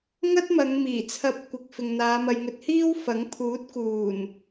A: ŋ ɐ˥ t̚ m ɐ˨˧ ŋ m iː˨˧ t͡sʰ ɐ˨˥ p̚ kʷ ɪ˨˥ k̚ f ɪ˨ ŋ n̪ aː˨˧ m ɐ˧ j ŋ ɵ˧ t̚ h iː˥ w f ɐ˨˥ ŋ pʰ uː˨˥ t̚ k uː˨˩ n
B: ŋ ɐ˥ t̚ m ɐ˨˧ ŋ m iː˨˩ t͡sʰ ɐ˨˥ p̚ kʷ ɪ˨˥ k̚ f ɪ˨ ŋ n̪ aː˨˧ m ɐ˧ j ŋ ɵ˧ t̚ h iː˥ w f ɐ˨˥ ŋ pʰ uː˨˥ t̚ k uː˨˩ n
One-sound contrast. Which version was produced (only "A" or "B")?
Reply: B